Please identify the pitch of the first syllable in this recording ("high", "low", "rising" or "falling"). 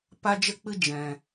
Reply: high